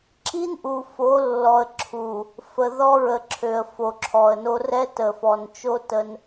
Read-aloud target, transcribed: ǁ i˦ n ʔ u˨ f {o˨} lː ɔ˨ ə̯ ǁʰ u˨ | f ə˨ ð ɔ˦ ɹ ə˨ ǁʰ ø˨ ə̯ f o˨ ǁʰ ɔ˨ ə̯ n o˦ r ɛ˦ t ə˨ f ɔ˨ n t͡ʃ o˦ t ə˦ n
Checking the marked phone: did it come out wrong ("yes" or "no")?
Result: yes